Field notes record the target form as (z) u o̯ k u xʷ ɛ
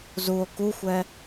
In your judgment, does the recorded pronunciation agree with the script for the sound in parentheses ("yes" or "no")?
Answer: yes